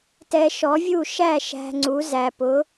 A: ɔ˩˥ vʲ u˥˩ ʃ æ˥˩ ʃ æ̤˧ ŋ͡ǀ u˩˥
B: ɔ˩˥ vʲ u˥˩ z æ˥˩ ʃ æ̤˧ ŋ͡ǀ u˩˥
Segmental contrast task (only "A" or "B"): A